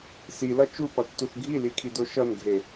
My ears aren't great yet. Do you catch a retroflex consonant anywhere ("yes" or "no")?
no